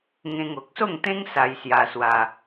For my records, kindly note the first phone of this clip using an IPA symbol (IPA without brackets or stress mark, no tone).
ŋ